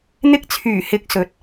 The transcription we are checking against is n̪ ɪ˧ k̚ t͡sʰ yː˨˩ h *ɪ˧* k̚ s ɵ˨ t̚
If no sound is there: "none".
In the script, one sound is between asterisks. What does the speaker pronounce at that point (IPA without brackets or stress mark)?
ɪ˨˥